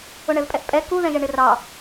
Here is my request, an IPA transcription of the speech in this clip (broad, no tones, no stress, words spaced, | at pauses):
ʊɳɛvpʼɛʔpʼɛ kuðɛ̃ʒɛ ɳɪrɑ